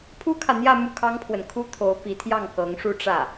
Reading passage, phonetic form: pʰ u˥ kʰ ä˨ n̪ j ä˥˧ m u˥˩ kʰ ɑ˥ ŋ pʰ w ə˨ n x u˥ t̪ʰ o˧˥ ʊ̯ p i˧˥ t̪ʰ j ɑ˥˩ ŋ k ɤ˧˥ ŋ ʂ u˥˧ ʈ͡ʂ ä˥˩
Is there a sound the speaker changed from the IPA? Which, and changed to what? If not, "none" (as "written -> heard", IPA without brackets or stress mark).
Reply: x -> kʰ